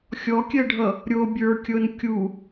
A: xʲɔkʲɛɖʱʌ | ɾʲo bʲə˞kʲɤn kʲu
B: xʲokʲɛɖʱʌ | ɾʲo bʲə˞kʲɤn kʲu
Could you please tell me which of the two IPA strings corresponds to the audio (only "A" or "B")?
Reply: A